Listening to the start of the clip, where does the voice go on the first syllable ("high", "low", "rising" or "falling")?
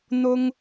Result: high